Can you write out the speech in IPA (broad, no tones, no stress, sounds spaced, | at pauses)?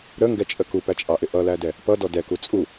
ɾ ə ŋ ɡ ɛ t͡ʃʼ ə k u p æ t͡ʃʼ ɑ ʔ ɪ ʔ ʌ l æ d ɛ | p ʌ d ɔ d ɛ k u t͡sʼ u